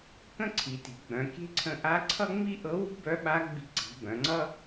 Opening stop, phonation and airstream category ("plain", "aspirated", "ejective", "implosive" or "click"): plain